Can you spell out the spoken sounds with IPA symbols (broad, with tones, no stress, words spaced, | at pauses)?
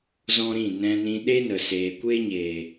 zɔ̃˦ɾĩ˦˨ nɛ̃˧nĩ˧ ɗe˦nə˨ seː˨kʷe˦ɲeː˨